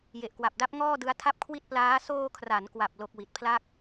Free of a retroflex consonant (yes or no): yes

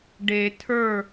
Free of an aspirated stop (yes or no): no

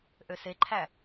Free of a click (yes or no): no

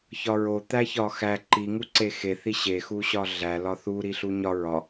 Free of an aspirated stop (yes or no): yes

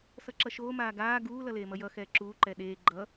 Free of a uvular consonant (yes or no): yes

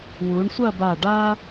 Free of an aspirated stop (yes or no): yes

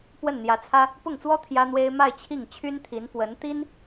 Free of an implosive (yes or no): yes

